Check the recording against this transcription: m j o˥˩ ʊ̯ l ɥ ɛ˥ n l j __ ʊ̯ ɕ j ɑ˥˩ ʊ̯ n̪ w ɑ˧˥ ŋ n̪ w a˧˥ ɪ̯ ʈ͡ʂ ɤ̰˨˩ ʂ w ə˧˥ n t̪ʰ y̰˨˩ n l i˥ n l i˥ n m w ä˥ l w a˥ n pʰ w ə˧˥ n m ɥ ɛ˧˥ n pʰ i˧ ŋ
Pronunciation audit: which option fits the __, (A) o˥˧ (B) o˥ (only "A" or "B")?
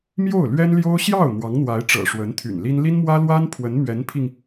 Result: B